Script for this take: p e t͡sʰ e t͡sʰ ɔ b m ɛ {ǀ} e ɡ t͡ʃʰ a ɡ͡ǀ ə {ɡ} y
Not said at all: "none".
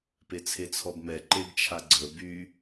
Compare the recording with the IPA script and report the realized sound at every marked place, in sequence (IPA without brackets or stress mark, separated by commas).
ǃ, b